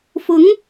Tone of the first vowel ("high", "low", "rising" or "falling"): rising